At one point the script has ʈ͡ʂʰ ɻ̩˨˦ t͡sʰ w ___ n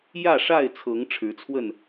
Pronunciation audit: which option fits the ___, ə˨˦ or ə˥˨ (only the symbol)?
ə˥˨